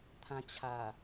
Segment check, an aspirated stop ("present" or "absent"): present